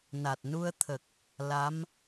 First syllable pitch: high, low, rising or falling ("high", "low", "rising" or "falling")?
low